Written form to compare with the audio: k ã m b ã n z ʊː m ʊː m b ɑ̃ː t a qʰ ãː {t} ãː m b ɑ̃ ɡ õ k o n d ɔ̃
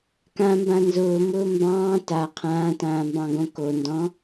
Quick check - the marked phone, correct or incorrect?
correct